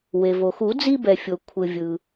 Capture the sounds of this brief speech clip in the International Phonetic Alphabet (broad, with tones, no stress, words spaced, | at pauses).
we˩vo˩xu˨˩˦ d͡zi˦bɛ˩fʲo˩ kʷʰɯ˩vʲɯ˩